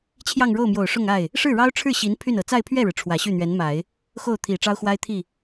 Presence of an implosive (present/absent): absent